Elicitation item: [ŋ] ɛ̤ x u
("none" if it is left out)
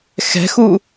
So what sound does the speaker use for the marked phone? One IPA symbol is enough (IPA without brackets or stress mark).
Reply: x